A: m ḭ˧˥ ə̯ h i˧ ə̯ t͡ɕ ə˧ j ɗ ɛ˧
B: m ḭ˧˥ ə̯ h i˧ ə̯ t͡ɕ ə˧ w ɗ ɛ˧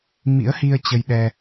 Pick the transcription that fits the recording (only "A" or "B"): A